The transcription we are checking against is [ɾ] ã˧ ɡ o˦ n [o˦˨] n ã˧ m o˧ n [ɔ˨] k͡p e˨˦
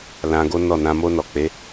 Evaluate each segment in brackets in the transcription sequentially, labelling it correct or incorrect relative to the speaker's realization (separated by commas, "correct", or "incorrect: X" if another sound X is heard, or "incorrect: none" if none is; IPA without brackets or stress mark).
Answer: incorrect: l, incorrect: ɔ˦˨, correct